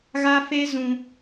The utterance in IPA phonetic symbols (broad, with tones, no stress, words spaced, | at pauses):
ɣa˦fe˦ zũ˦